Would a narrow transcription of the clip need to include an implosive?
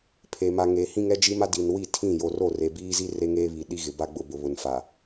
yes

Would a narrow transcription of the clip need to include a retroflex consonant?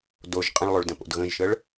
yes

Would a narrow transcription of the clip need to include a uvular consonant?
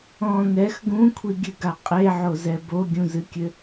yes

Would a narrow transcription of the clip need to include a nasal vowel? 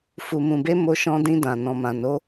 yes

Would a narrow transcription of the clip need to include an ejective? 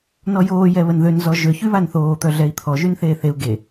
no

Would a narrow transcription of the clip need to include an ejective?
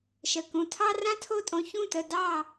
yes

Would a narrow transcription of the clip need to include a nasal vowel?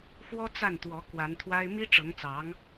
no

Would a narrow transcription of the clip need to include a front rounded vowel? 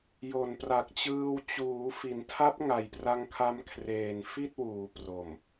no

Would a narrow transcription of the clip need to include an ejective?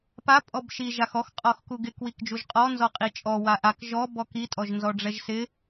yes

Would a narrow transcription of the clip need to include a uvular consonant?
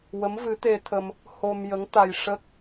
no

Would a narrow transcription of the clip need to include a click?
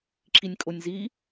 yes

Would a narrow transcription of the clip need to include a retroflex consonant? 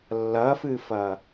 no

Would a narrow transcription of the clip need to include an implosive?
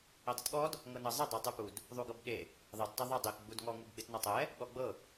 yes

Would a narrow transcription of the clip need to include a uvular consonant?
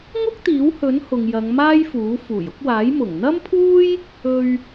no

